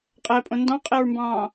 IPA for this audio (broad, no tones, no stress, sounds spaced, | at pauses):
qʼ æ pʼ õ n d ɑ̃ qʼ ɛ ɹ m b ɑ̃ː